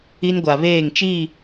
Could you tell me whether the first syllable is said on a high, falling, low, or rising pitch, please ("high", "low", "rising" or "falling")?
high